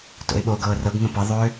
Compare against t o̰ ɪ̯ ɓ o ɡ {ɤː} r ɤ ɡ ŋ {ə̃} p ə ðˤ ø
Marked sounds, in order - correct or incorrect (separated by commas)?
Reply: correct, correct